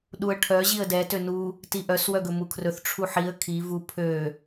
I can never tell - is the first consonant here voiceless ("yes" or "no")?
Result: no